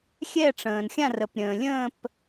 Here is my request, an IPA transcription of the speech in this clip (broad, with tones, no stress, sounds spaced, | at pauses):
xʲ ɛ˦˨ ʈ͡ʂ ə̃ː˩ n xʲ ã˦˨ r ə˩ p ɾʲ ə̃ː˩ lʲ ə̃ː˦˨ p